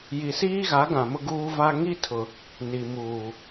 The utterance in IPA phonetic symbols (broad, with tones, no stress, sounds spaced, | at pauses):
j i˨ s iː˦ ɣ a˨˦ ɡ ã˨ m ʊ˦ ɡ uː˦ v a˦ ŋ i˦ tʰ ʊ˨ | n i˨ m uː˨